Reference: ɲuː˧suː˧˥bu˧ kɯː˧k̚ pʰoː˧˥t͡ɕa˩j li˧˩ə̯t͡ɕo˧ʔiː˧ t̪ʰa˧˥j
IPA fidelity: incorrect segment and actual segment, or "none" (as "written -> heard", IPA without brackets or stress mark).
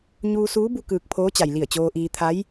o˧ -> oː˧